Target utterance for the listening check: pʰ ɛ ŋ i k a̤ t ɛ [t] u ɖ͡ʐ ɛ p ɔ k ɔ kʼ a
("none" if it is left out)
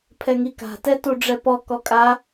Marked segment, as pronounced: t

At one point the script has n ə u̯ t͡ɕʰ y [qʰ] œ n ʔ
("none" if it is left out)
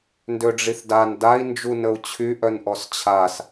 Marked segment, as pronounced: ʔ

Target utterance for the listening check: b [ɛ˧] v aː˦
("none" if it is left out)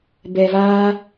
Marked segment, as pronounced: ɛ˧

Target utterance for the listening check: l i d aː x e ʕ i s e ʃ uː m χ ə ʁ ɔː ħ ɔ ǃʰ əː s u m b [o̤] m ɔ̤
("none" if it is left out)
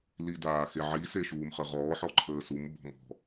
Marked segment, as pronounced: ɔ̤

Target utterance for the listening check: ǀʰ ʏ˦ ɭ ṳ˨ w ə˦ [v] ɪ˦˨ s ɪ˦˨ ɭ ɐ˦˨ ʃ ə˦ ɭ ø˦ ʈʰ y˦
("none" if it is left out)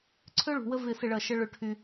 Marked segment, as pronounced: v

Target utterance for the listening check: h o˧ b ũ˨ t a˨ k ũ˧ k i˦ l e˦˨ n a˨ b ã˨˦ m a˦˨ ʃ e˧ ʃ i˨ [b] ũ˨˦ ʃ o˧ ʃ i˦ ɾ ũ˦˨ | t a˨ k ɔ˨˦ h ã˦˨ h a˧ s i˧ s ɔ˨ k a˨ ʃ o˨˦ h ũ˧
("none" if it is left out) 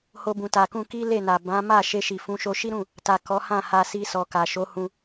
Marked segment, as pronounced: f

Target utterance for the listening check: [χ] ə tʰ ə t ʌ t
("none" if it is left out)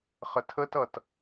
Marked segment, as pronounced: χ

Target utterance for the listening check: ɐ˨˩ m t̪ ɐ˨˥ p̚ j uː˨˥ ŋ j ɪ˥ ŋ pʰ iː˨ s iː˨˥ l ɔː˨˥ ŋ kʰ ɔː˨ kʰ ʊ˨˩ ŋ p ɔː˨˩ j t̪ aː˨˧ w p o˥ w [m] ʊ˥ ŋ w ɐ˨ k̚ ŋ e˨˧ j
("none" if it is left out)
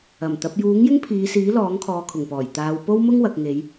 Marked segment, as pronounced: m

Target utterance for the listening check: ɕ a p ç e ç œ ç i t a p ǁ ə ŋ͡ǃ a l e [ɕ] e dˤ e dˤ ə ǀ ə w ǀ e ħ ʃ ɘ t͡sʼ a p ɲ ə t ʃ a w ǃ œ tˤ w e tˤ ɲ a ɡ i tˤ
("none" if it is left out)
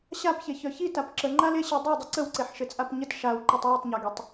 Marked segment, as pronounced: ɕ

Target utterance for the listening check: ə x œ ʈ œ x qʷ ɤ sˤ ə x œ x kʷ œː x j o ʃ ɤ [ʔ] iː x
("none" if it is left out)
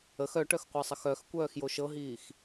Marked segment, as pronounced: ɦ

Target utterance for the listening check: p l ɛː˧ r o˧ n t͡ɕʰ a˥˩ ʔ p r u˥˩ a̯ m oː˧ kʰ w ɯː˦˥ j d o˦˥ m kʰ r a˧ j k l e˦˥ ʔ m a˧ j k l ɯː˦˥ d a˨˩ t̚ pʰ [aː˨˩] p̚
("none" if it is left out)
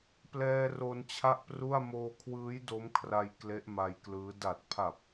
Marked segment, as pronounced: a˨˩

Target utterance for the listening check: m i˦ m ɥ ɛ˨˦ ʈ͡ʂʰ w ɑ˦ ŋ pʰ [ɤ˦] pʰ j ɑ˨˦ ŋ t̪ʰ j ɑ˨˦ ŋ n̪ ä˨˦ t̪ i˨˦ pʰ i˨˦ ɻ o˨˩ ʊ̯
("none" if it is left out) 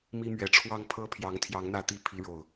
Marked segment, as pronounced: ɤ˦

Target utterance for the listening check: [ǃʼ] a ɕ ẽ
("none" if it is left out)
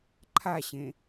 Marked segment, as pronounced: ǃʰ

